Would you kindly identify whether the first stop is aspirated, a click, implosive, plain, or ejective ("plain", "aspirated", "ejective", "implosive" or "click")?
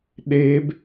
implosive